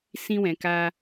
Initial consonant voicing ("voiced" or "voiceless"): voiceless